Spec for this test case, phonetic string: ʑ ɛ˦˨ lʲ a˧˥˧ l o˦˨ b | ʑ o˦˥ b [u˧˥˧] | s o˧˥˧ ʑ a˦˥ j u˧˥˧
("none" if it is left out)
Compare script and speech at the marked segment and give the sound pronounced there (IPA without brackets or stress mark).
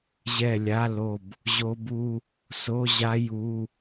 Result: u˧˥˧